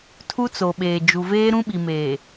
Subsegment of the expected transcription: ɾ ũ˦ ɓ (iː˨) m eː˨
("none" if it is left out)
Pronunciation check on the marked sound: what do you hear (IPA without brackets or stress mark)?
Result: i˨